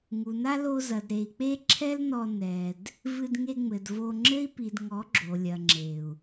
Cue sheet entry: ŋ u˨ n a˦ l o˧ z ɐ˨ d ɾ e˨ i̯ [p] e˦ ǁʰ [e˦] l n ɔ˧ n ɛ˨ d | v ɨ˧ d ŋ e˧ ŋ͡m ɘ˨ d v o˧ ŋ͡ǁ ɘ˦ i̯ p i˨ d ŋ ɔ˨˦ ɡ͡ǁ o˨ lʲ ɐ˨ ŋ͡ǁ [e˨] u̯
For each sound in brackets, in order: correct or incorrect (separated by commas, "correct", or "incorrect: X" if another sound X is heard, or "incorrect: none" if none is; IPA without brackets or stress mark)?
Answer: incorrect: k͡p, incorrect: ɛ˦, correct